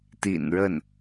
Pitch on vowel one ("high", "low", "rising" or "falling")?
low